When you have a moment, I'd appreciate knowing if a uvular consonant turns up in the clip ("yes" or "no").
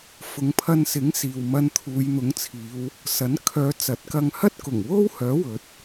no